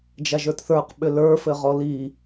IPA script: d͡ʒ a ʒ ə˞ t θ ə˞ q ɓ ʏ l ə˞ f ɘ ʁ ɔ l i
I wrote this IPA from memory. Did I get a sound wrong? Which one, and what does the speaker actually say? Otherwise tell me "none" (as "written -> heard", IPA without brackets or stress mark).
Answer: none